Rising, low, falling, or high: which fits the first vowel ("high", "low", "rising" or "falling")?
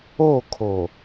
falling